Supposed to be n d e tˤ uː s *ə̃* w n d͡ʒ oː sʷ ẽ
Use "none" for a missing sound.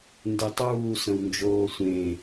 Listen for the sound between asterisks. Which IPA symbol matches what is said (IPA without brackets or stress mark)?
ə̃